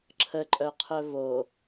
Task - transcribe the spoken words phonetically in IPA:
ǁʰ ə ǃʼ œ qʰ œ v o

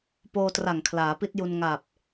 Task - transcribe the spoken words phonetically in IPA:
p oː˧ t r a˨˩ ŋ kʰ l aː˩˦ p i˦˥ t̚ j u˧ n ŋ a˨˩ p̚

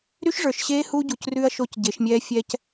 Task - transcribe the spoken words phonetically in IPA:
ɾ y˦ ʃ ʐ ə˞˨ ʃ ɕ eː˦ h u˦ ɟ u˨ c r ʉ˦ ɐ̯ ʃ o˦ c ɟ e˨˦ ʃ mʲ ɛː˦ fʲ ɛː˦ c

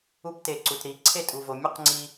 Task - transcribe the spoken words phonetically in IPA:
u˧ p t e˨ ǀ u˨ t ɾ i˨ ǀʰ e˦˨ tʼ u˨ v o˨ mʲ u˧ q ŋ͡ǀ i˧

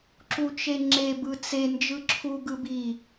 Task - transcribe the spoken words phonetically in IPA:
ǁ u t͡ʃ e ŋ͡ǁ e b ɯ t͡s e n d͡ʒ ɯ ǁʰ u ɡ ɯ b i

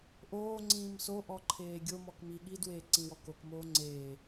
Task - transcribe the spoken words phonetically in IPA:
ʔ oː ŋ͡ǀ ĩː m s o ʔ ɔ ǃʰ eː ɡʲ o m ɔ k m i ɠ i d w eː ǀ ĩ w ɔ k o k m oː ŋ͡ǀ eː

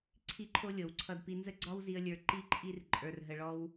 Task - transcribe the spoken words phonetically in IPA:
ǀʰ i˦ ǃʰ o˦ lʲ ɤ˨ w ǀʰ ʌ˧ d p i˧ n z ə˦ ɡ͡ǀ ɒ˦ w z i˧ ə̯ lʲ ə˞˧ ǃ i˦ ǃʼ i˦ r ǃʼ ə˞˧ r ɦ ə˧ ɭ ɔ˦ w

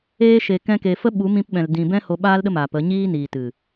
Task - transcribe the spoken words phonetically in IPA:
eː˧ ʃ e˨ k ɛ̃˧ k e˨ f ə˦ ɓ u˨˦ m ĩ˧ p ɓ ɛ̃˨ l d ĩ˨ b ɛ̃˦ h o˧ ɓ aː˦ l ɗ ə˦ m aː˨ p ə˨˦ ɲ iː˧ n iː˨ t ɨ˨

